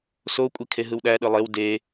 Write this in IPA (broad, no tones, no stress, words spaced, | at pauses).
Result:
sokʷʼikʰeɦɯw ɗæɗɯ lˠew de